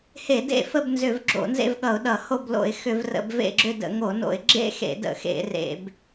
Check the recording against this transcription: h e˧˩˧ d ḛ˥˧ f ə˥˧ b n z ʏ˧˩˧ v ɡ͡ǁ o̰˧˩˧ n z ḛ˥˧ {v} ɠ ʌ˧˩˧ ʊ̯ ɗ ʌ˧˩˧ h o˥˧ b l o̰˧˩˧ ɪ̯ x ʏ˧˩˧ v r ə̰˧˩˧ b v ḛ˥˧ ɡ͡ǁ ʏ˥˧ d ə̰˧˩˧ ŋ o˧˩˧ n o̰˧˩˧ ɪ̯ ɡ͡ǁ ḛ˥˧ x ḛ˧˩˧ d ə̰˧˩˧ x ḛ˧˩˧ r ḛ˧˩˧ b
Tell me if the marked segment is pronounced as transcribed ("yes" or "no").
yes